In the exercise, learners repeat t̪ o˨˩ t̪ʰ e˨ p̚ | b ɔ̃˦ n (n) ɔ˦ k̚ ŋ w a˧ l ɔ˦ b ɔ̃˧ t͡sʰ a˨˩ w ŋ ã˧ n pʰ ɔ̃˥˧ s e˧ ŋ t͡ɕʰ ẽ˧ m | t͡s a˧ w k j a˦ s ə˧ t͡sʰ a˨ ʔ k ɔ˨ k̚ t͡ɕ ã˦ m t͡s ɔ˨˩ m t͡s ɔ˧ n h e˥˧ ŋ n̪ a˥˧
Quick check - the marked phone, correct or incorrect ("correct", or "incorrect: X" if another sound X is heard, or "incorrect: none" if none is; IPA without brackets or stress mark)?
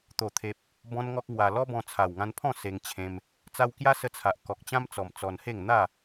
incorrect: ŋ